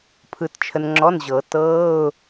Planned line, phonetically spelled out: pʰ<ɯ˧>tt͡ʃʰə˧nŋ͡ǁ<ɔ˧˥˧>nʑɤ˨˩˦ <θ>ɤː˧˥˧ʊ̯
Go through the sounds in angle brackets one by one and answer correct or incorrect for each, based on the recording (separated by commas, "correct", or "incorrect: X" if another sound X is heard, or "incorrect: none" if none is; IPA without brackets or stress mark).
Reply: correct, correct, incorrect: t